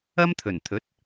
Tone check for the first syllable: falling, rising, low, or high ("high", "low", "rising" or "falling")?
high